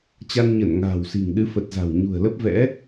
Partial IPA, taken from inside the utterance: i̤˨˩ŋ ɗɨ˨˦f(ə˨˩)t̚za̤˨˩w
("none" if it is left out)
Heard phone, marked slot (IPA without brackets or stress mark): ə˨˩